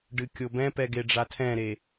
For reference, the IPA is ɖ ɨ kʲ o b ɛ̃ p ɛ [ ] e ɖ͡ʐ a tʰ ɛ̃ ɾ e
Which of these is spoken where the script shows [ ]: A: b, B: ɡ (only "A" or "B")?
B